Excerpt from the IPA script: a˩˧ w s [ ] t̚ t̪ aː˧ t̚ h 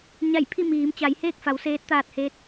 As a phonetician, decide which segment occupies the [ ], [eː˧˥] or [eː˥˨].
eː˧˥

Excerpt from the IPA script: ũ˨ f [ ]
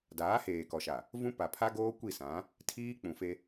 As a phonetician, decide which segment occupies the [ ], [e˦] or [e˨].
e˦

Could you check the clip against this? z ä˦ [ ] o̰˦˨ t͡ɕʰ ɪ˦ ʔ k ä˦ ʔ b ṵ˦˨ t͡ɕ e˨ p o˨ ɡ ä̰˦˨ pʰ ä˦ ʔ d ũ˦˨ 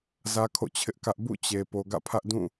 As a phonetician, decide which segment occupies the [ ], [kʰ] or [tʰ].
kʰ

